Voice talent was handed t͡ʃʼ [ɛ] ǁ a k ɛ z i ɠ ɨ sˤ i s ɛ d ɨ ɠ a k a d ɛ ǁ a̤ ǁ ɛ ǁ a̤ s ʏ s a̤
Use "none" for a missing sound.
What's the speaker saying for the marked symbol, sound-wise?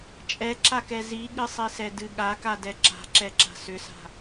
ɛ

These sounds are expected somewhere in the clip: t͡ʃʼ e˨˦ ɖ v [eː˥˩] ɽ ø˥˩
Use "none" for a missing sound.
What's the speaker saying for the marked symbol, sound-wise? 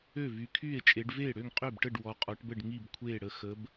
eː˥˩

